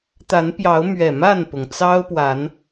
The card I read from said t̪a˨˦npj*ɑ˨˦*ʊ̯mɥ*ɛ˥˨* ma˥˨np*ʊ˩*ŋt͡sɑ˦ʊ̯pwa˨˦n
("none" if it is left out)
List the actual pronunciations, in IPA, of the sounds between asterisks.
ɑ˨˦, ɛ˨˩, ʊ˩

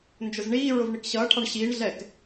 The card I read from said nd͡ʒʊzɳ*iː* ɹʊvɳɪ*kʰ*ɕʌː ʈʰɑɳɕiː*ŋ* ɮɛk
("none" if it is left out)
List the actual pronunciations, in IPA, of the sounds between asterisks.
iː, k, ɳ

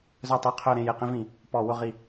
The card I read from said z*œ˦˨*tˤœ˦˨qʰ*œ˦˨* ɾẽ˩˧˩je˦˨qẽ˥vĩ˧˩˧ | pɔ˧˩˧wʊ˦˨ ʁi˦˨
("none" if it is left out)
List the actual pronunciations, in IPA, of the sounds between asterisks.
œ˦˨, œ˦˨

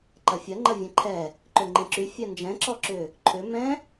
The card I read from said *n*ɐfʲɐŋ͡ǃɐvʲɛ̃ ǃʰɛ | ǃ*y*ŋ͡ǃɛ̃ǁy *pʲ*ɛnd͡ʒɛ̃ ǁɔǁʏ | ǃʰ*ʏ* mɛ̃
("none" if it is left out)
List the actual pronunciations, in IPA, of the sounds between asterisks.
ǃ, ø, fʲ, ʏ

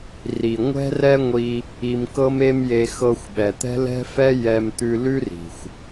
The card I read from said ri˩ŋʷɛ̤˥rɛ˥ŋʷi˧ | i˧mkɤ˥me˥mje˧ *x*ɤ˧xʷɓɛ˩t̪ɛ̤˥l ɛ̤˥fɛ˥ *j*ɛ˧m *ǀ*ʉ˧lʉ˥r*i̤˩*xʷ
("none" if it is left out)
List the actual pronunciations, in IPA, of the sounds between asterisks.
x, j, t̪, i̤˩

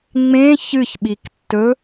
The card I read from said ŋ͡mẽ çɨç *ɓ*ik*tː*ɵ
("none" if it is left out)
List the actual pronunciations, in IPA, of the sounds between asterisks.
ɓ, tː

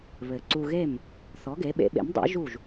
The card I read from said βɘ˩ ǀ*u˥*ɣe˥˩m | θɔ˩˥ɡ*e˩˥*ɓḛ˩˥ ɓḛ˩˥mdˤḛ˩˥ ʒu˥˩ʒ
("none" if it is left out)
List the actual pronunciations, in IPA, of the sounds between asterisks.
u˧, e˩˥

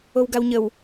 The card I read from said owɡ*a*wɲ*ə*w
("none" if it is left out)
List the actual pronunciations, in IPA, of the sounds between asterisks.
a, ə

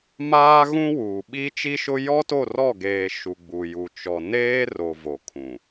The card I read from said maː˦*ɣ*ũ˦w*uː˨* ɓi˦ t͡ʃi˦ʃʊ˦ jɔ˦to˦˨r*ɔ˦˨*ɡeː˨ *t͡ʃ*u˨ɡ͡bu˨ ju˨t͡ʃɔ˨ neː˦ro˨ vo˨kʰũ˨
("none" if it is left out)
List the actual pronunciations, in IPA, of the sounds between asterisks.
ɣ, uː˨, ɔ˦˨, ʃ

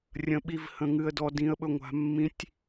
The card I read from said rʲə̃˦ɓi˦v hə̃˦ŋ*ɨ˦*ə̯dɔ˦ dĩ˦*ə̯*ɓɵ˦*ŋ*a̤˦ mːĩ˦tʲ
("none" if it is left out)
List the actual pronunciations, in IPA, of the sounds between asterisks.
ɨ˦, ə̯, ŋʷ

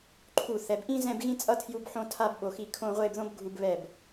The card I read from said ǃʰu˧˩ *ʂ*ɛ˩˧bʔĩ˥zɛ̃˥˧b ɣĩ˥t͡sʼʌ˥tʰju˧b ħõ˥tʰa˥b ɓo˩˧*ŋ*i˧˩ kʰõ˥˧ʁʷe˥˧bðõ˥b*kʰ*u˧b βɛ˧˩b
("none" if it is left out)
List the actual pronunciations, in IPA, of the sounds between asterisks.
θ, x, ɡʱ

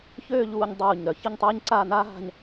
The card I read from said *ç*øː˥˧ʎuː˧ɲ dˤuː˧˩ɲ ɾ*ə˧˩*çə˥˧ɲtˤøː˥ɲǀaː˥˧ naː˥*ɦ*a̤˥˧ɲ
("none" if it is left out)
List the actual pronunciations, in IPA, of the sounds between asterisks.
ç, œ˧˩, ɦ

